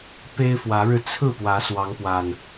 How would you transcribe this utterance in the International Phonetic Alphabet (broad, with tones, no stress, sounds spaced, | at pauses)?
p e˦ ɪ̯ f w ä˨˦ ɻ ɻ̩˧ t͡sʰ ɹ̩˥˨ p w ä˨˦ s w ɑ˨˦ ŋ p w a˨˩ n